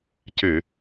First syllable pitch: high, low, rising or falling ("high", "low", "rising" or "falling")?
low